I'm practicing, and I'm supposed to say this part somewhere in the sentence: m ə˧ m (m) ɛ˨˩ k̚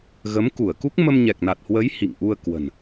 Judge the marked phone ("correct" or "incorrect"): incorrect